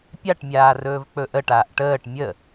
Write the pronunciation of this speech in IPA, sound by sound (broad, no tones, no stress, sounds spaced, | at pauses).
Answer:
pʲ a ʈ mʲ aː r ɵː v k͡p ɵ ʔ ə ʈ aː ʔ ʈ əː ʈ mʲ ə